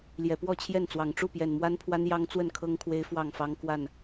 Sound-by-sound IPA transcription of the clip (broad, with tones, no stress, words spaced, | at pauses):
ljɛ˨˩pwɔ˥˨t͡ɕʰjɛ˥˨nt͡swɑ˨˩ŋ ʈ͡ʂu˥˨pjɛ˨˩nmwa˦npʰwa˦n jɑ˦ŋt͡swə˥˨nkʰɤ˦ŋkʰwe˦ɪ̯ fwɑ˥˨ŋfɑ˦ŋ kwa˥˨n